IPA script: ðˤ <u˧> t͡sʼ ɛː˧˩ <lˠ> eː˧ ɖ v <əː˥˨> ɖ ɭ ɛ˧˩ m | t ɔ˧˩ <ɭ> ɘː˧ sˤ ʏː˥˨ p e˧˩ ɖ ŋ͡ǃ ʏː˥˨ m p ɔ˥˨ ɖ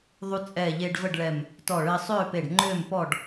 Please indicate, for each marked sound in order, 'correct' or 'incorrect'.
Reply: correct, incorrect: ʎ, incorrect: ə˥˨, correct

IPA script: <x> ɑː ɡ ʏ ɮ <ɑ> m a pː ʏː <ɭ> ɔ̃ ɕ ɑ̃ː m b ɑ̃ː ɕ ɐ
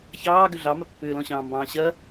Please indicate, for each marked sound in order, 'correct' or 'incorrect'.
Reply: incorrect: ç, correct, incorrect: l

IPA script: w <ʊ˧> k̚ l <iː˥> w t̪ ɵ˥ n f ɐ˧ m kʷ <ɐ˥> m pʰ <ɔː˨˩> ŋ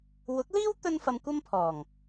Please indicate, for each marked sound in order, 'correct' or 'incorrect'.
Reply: incorrect: ʊ˨˥, correct, correct, correct

